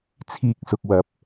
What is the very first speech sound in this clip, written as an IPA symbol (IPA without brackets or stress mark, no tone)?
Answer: t͡sʰ